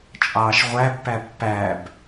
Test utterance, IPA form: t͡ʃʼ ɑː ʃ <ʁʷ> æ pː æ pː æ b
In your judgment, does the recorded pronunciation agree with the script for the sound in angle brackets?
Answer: yes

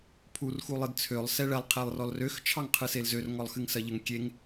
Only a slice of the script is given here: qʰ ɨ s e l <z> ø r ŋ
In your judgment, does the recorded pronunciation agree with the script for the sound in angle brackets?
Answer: yes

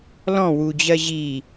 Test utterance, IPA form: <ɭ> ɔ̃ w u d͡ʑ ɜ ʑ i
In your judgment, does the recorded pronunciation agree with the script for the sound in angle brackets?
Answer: no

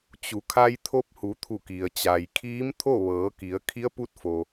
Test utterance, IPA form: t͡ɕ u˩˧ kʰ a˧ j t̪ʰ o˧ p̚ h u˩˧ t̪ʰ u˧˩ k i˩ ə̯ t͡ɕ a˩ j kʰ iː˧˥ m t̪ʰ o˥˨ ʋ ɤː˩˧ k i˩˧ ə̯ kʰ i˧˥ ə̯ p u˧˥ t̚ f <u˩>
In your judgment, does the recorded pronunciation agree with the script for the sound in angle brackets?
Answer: no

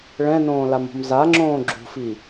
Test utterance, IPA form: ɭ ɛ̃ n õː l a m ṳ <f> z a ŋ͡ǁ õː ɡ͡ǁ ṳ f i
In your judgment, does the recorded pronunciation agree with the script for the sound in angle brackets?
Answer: no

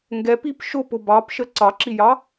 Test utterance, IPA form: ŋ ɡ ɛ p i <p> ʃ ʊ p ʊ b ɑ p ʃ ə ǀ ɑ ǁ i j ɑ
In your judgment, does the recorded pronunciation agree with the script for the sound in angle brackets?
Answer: yes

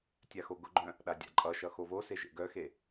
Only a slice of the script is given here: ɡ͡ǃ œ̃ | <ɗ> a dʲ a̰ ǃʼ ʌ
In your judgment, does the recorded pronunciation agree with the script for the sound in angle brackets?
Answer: yes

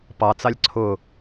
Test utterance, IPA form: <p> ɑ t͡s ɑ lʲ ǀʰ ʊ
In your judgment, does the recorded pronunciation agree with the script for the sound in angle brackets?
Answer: yes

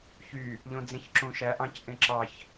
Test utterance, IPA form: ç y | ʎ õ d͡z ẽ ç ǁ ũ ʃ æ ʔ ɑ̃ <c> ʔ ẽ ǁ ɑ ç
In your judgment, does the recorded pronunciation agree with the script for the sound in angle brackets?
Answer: yes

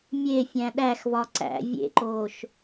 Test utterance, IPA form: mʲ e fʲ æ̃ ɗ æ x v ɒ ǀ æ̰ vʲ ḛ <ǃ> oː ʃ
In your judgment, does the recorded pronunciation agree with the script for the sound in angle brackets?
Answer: yes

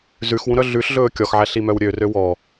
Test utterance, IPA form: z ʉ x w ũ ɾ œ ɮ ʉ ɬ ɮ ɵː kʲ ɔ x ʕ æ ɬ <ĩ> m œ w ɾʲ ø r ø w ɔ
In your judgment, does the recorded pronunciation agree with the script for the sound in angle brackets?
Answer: no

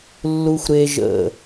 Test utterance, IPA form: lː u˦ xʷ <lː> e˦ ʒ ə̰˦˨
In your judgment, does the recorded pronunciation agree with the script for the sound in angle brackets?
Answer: no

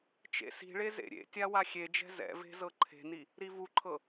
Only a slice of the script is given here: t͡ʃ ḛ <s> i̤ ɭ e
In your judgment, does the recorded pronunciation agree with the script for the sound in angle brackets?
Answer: yes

